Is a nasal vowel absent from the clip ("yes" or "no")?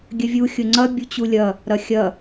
yes